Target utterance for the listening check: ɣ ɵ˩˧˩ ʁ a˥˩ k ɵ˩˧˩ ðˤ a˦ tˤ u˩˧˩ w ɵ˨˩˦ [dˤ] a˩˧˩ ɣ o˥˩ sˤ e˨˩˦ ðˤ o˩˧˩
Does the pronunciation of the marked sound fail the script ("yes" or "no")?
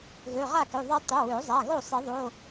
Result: yes